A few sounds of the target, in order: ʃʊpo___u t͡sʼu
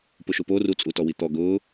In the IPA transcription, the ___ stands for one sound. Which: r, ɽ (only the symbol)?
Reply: r